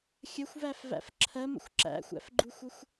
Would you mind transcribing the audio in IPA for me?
xʲ ə xʷ v æ f v æ̰ f ǁʰ ɜ m ə̰ xʷ ǁ æ̰ xʷ æ̰ f ɡ͡ǃ u xʷ ə xʷ

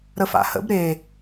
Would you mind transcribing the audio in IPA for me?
ɾ ə f a̰ h ə̰ b ɾ e

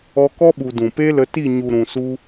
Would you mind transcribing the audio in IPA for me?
ɔ˧ k ɔ˦ ɓ u˨ d ũ˨ p e˦ l ə˧ t i˦˨ ɲ u˨ ɾ ũ˨ s u˧

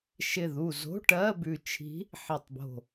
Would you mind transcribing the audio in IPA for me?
ʃ ɪ˧˩ ð u˧˩ z o̤˧˥˧ ʈ ɜ˧˥˧ b ʉ˧˩ t͡ʃʰ i̤˧˥ | ħ e˧˩ tˤ b o̤˧˩

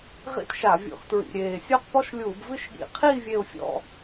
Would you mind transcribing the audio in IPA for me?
ʁ ḭ˥˧ t ʃ a˧˩˧ vʲ ɔ̰˧˩˧ x t ɹ ḭ˨˩ ɾʲ eː˨˩ sʲ o˥˧ q p ɔ˥˧ ʃ lʲ uː˧˩˧ b v ɨ˥˧ ʃ ɠ ḭ˧˩˧ qʰ i˥˧ vʲ e˥˧ ʊ̯ fʲ ɔ̰˥˧

